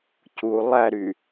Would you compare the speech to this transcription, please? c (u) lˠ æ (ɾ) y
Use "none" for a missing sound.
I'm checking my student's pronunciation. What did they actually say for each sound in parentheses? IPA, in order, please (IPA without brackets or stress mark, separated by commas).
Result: u, ɾ